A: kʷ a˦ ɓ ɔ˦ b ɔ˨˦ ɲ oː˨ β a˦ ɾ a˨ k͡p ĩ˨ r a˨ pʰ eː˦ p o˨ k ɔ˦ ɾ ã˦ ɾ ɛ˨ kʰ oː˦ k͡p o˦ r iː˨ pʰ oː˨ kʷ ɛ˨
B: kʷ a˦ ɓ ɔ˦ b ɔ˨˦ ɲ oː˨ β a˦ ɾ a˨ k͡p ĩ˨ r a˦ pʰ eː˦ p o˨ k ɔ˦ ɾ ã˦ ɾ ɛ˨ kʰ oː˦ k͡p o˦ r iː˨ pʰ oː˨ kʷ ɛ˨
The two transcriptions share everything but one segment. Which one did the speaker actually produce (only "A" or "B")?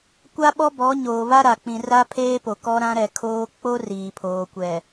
B